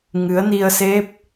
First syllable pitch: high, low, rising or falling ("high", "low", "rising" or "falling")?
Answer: rising